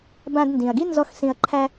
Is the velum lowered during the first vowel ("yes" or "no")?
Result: yes